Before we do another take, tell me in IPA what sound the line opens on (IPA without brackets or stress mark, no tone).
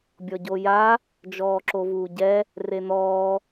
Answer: bʲ